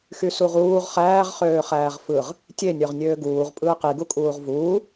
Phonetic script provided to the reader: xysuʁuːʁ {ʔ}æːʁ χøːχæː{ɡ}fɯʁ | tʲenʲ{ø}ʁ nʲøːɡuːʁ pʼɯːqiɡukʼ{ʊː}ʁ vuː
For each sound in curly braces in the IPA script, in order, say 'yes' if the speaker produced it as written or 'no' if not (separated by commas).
no, no, yes, no